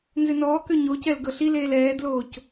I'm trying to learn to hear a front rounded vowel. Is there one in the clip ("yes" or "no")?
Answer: yes